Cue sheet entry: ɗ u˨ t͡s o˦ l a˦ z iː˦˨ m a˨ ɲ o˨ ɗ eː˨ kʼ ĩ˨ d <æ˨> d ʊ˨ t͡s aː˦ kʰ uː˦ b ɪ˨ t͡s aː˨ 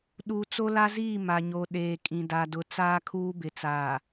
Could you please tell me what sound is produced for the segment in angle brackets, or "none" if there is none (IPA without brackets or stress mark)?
a˨